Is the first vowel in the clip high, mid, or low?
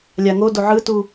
low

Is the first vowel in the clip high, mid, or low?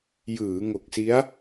high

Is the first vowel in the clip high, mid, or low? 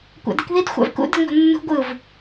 low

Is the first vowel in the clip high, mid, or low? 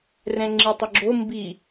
mid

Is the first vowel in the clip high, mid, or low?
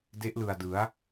mid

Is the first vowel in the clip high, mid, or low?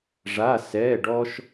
low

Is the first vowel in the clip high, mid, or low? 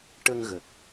mid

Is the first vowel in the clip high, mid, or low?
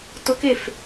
high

